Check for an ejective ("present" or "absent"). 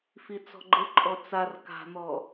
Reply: present